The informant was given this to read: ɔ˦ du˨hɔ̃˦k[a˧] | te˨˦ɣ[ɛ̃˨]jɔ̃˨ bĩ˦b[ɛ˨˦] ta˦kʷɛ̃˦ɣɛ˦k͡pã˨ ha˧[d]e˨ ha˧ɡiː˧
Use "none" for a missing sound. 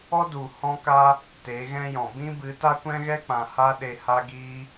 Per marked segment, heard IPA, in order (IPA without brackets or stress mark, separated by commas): a˦, ɛ̃˦, ɨ˨˦, ɗ